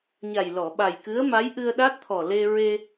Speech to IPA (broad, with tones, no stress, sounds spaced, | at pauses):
ɲ a˨˩ j l ɔ˨˩˨ ɓ a˨˩ j k ɨ˧˥ ə̯ m a˧˥ j ʔ ɨ˧ ə̯ ɗ a˦˥ t̚ t̪ʰ ɔ˨˩ l e˧ ɹ e˧